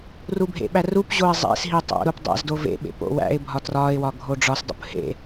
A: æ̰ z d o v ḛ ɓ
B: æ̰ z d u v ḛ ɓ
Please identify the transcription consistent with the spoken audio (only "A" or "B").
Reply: A